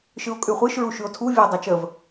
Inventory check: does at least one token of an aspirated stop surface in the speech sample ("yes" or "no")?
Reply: yes